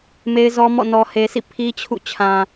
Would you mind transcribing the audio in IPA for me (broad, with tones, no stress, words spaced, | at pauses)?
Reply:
me˦ɪ̯zɔ˦mɔ̰˦˨ nɔ˨he˨sʰḭ˦˨ pʰi˦t͡ɕʰṵ˦˨ t͡ɕʰã˨